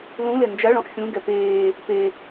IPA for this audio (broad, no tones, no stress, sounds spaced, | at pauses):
l ũ l e n d͡ʒ a ɭ ɔ̃ ʔ xʲ ũ ɡ ɛ p eː | p e